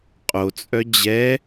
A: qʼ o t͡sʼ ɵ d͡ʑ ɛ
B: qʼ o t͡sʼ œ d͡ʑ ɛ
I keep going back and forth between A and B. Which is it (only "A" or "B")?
B